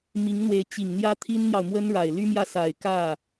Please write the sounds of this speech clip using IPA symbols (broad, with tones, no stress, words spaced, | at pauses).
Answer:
mi˧˥ŋn̪we˧˥ɪ̯ t͡ɕi˨˩ŋn̪jä˥t̪ʰi˥nn̪jɑ˨ʊ̯ mwə˥nɻa˨˩ɪ̯ly˥mjä˥˩ sa˨˩ɪ̯kä˥˩